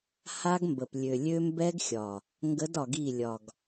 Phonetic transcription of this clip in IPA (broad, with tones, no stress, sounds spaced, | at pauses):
h a˦ ɡ m b ə˨ p lʲ ø˨ lʲ ø˦ m b ɛ˦ ɡ xʲ ɒ˨ | ŋ ɡ ə˨˦ d ɒ˨ ɡ i˦˨ lʲ ɒ˨ ɡ